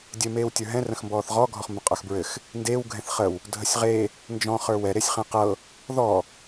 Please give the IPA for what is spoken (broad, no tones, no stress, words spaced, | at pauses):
dʲɘ meːwtʲə˞ɦɛ̃ rə̃xmbɔːθʁɔ ɡʱɔχmbə̃qʼə˞xbɹɘx | ndeːw ɡʱɛ̃θχəw | dʱəsʲʁe | nd͡ʒɔ̃ χə˞wɛ ɾesʲχẽqɤ | ðɔ